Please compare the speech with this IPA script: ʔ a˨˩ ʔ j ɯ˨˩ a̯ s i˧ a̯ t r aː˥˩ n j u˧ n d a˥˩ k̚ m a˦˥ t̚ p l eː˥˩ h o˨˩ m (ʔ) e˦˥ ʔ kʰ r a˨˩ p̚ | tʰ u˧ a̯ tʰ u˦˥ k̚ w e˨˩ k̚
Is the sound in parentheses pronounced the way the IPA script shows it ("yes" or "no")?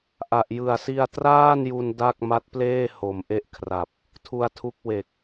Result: yes